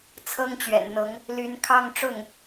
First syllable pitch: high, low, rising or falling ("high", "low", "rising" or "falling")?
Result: high